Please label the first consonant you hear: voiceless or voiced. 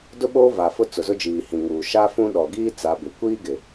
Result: voiced